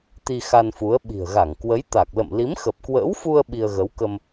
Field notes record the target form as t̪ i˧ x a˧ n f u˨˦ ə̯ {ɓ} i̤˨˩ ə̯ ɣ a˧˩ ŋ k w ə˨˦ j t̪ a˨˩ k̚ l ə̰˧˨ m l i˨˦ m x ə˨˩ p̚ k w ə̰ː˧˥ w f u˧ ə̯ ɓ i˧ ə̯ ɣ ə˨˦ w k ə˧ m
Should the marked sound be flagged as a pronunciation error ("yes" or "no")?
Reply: no